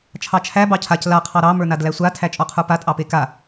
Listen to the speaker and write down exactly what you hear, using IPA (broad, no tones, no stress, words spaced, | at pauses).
t͡ʃʰɑt͡ʃʰæ bɑcʰac la qʰɑɾɑ mə˞nadlæsʷa tʰæt͡ʃʼɔqʰə˞pa tʼɑpeka